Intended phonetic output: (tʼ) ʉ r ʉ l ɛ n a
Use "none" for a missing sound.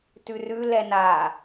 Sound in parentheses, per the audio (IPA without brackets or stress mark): t